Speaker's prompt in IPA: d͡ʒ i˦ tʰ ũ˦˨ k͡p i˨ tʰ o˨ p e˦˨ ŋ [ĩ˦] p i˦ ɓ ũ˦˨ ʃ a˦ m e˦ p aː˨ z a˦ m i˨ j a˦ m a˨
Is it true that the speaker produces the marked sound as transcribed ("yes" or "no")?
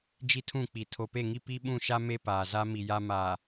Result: no